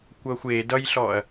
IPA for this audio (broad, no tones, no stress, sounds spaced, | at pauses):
kʷ ʌː xʷ eː d ʌ j ɬ ɔː ɐ̯